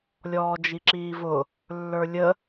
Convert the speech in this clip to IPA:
lʲ ɔː d͡ʒ i ǁ iː v ʊ | lː ə˞ lʲ ə

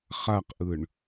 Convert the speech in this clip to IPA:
χ a q ʔ ɯ ɳ

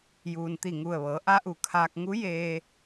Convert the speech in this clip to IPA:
j uː˩ n t̪ i˧˩ ŋ u˧˩ ə̯ ʋ ɤː˩˧ ʔ a˧˥ ʔ u˩ kʰ aː˧ k̚ ŋ u˧˥ j eː˧

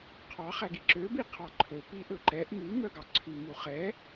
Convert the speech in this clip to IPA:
qʰ ɑ χ æ ɡ i ǁ ø b i qʰ ɑ ǃʰ ɵ p i ʔ ɵ ǃ ɛ ʔ m ʉ m œ ɡ ɑ ǀʰ ʉ m u χ ɛ

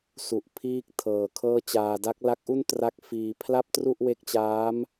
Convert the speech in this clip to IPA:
s u˨˩ ʔ pʰ iː˥˩ k̚ tʰ ɤː˨˩ kʰ ɤː˥˩ t͡ɕ aː˧ d a˦˥ k̚ l a˦˥ k̚ ʔ u˥˩ n t r a˦˥ k̚ f iː˧ pʰ l a˥˩ p̚ t r u˥˩ ʔ w e˦˥ k̚ t͡ɕ aː˦˥ m

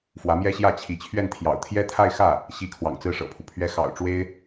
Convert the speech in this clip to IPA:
f w ä˧˥ m j ɛ˥ ɕ j ä˥˩ t͡ɕʰ i˧˥ t͡ɕʰ ɥ ɛ˥˩ n t̪ʰ j ɑ̰˨˩ ʊ̯ t̪ʰ j ɛ˥ t̪ʰ a˥˧ ɪ̯ x ä˥˩ | ɕ i˥ kʰ w ɑ̰˨˩ ŋ t͡s ɹ̩˥˩ ʂ ɤ̰˨˩ pʰ u˦ pʰ ɥ ɛ˥ x ɑ̰˨˩ ʊ̯ ʈ͡ʂ w e˥ ɪ̯

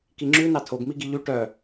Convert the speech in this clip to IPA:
k i ŋ͡ǁ ʉ n ɑ tʰ o ɡ m i ɡ i ʎ y ʈ œ

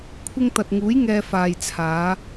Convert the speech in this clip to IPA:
kʷʰ ɪ˧ ŋ t̪ ɐ˨ t̚ ŋ uː˨˥ j ŋ ɛː˧ f aː˨ j t͡sʰ aː˨˧

